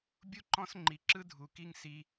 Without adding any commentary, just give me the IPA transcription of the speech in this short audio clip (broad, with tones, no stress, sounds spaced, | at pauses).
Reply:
bʲ u˦ ǃ ɔ̃˦ s ŋ͡ǃ i˧ ǁ ɯ˦ dʱ u˧ k i˦ ŋ s i˦